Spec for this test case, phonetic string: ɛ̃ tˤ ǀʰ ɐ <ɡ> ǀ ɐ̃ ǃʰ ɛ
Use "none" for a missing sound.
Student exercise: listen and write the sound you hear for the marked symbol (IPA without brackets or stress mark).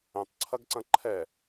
ɡ